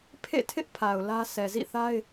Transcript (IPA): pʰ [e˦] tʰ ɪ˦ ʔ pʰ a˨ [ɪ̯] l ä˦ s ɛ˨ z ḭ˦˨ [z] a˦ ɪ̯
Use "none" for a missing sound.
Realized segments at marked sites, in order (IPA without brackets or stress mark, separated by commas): ḛ˦˨, ʊ̯, θ